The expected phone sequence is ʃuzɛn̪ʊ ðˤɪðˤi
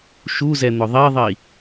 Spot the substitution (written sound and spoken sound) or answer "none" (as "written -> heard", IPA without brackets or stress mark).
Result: ɪ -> i